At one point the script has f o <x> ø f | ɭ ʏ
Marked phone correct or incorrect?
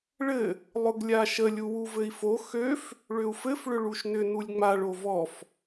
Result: correct